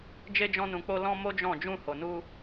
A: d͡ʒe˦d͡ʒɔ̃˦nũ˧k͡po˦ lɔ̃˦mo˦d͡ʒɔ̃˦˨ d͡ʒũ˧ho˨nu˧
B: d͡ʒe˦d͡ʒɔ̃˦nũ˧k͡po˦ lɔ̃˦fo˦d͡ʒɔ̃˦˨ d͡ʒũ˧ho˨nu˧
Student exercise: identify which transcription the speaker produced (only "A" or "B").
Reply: A